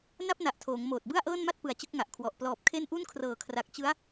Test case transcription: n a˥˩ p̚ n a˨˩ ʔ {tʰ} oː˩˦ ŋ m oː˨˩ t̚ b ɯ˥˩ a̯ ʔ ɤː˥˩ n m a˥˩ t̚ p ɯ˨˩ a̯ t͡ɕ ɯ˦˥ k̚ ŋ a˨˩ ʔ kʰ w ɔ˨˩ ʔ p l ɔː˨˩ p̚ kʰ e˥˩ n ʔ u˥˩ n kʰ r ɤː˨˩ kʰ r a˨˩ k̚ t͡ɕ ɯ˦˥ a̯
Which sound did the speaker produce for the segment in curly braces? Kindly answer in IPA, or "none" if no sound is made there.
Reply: tʰ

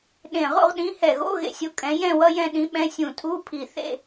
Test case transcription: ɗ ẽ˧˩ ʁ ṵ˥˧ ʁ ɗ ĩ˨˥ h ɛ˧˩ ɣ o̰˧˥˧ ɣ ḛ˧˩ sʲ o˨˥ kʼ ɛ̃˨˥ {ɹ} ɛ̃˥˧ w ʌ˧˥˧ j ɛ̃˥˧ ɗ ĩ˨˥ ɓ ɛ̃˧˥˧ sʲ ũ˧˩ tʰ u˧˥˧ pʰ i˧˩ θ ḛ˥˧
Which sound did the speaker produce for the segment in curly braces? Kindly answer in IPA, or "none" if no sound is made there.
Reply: j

